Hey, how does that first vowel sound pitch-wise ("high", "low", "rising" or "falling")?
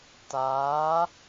rising